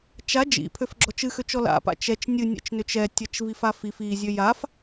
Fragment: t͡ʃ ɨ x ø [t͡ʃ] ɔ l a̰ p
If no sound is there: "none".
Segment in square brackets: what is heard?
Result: t͡ʃ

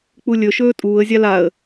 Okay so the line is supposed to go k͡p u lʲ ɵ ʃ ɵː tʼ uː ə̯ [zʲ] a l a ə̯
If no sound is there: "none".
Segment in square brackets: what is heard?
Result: zʲ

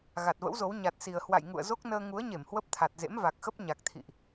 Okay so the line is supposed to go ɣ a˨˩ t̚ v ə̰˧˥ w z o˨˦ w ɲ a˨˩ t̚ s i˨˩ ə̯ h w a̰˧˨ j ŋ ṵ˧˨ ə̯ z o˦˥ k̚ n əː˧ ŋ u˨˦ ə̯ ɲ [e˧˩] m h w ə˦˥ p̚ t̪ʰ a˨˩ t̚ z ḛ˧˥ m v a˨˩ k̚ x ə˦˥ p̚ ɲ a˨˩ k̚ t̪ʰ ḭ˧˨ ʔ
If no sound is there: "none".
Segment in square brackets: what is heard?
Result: e˧˩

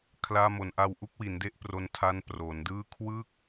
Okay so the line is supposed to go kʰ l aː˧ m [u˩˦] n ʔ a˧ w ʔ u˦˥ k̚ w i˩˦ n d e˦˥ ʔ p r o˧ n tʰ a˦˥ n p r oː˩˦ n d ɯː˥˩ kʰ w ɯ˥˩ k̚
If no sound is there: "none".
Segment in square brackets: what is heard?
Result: o˩˦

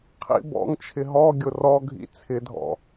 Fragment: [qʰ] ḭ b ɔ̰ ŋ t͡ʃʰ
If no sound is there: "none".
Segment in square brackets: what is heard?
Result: qʰ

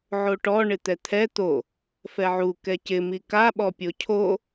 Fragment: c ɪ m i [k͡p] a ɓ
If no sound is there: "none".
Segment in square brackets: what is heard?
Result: k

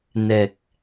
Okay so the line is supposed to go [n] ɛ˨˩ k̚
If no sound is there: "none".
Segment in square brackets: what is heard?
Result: n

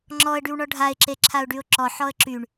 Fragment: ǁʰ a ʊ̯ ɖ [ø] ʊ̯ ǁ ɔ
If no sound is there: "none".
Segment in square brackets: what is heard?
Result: y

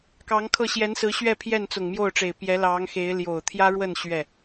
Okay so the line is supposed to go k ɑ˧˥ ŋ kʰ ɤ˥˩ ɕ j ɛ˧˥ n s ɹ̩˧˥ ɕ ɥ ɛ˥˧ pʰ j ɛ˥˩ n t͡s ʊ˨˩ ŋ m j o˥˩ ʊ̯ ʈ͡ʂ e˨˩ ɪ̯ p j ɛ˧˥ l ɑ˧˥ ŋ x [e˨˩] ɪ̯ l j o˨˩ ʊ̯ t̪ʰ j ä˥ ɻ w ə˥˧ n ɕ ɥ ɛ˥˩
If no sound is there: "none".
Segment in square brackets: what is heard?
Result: e˧˥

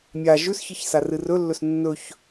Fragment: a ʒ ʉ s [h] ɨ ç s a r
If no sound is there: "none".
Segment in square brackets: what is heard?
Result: ç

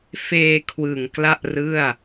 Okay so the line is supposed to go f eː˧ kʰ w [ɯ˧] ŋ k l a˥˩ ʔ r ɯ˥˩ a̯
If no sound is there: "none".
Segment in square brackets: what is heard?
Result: ɯ˨˩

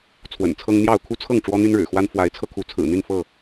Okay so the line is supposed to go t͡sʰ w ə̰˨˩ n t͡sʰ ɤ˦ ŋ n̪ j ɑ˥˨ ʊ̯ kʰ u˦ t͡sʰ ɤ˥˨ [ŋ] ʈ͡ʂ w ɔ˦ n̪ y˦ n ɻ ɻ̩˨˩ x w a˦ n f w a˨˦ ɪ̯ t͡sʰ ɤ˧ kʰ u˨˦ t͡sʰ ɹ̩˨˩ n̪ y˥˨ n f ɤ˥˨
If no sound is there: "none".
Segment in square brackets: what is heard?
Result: ŋ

